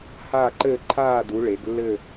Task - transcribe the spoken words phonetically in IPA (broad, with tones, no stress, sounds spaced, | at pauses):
h aː˦˨ ǃ ɘː˦˨ ǃʰ aː˦˨ d u˩˧ ɭ e˩˧ ɡ lː ɘ˦˨